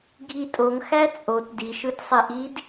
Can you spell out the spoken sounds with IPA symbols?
ɡʱitʼoŋ xæt͡sʼot diʃɯtsˤeʔid

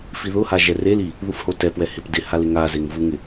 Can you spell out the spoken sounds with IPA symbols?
fiðʊha ʒɛreli | ðufhotɛpwɛ hɪpdɪhal ɪŋazeŋ vuŋɪ

